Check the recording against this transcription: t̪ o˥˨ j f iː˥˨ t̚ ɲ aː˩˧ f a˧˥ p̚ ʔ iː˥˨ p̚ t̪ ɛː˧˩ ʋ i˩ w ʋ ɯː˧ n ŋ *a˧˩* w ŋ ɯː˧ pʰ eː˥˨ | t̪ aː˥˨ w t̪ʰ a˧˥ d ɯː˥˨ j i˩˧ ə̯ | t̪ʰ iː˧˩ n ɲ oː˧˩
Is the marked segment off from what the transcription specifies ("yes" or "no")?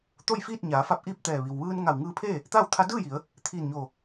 no